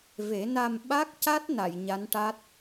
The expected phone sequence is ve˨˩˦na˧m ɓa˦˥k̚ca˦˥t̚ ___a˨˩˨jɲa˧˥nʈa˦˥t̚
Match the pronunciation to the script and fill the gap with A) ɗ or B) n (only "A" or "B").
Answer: B